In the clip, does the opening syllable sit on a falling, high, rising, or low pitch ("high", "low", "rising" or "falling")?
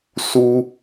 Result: high